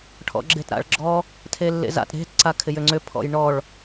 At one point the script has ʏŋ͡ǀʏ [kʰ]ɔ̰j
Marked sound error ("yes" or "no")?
yes